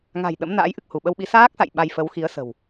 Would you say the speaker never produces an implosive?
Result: no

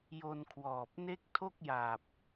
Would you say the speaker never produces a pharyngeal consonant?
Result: yes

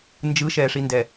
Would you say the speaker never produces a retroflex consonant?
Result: no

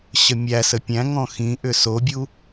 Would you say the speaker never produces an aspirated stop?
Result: yes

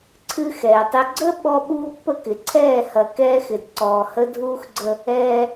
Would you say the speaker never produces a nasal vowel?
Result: yes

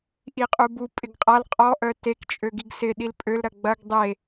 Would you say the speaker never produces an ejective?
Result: no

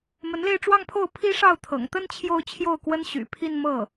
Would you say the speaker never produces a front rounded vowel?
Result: no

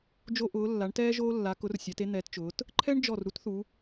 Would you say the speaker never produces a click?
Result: no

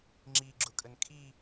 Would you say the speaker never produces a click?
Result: no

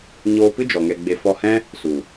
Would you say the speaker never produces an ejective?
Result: yes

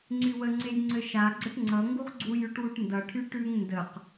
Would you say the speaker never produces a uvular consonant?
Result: no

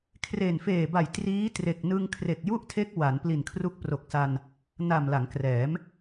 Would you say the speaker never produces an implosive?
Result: yes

